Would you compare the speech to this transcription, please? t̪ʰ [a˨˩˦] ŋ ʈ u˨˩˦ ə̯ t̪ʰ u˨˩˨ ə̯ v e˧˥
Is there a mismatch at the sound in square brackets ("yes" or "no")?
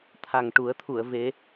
yes